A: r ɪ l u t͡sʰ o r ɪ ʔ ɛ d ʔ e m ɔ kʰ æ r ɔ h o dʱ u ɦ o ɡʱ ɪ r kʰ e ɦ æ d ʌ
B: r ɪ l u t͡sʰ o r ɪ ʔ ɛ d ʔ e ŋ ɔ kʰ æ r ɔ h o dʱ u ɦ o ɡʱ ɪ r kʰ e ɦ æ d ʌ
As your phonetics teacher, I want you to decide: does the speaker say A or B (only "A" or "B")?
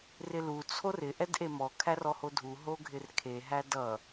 A